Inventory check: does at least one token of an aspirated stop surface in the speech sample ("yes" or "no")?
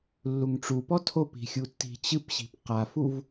yes